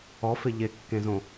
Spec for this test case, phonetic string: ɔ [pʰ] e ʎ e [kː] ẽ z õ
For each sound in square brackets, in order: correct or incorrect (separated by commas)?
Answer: incorrect, correct